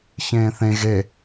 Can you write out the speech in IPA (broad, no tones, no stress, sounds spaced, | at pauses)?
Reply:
ç ẽː θ ẽ ɣ e